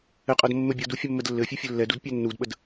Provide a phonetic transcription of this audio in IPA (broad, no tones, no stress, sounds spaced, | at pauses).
ɘ qʼ ɤ d mː ɘ bʲ ɤ d u fʲ ə mː ə d lː ɘ fʲ ɛ fʲ ɘ lː ɛ d u d pʲ ɘ nː u d ɓ ə d